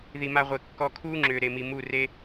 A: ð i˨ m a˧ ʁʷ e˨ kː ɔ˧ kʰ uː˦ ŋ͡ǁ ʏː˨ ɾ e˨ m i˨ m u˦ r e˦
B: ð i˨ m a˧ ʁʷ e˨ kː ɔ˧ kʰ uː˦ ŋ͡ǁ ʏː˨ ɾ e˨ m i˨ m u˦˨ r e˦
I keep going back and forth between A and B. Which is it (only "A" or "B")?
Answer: B